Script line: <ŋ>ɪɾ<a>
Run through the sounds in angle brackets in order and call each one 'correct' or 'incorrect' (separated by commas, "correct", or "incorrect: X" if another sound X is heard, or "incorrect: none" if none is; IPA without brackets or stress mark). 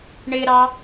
incorrect: ɳ, incorrect: ɑ